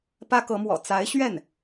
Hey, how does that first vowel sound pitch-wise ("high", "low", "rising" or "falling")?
high